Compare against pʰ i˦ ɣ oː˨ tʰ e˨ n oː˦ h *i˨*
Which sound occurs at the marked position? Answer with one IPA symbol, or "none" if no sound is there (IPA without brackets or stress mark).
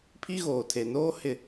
ɪ˨